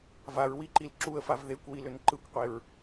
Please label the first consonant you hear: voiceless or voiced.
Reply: voiced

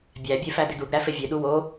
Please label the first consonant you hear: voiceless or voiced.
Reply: voiced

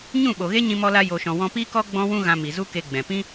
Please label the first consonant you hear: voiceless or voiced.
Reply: voiced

